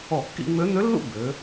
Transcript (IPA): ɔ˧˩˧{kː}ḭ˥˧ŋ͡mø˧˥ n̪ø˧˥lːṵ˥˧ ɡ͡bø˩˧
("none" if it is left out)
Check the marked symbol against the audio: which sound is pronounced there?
kː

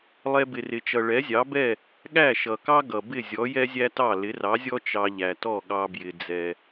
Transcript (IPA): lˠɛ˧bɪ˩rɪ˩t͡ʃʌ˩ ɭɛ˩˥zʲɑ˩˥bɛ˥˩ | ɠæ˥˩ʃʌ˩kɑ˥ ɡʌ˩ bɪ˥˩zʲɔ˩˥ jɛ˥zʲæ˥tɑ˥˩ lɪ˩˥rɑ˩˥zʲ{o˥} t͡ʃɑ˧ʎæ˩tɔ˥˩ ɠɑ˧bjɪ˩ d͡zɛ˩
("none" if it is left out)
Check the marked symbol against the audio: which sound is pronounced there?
ɔ˥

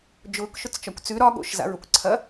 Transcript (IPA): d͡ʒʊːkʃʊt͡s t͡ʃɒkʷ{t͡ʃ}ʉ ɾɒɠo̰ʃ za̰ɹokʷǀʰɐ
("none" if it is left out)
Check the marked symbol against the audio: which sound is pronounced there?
t͡s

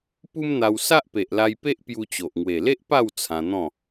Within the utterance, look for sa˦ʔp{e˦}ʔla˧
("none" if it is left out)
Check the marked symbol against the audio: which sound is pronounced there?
e˨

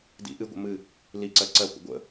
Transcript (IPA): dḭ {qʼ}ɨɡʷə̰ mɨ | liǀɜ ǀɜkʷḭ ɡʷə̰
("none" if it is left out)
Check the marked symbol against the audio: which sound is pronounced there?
ʔ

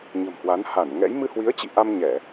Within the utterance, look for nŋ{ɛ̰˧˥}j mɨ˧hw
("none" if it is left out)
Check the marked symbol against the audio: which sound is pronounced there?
ɛ̰˧˥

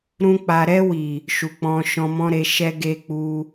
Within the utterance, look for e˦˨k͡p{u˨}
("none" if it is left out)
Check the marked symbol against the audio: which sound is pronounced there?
u˧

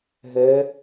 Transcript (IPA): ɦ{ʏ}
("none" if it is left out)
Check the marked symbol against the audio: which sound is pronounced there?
ɛ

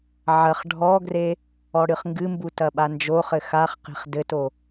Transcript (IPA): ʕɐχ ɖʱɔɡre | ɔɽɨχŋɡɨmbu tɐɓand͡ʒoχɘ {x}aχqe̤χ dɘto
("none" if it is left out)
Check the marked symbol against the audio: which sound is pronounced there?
x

